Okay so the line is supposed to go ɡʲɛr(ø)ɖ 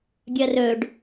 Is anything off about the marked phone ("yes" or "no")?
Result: no